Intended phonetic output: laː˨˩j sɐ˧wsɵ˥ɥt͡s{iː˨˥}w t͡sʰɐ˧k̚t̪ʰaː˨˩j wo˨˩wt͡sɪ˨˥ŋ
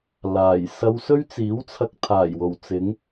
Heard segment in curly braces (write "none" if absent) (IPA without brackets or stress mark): iː˨˥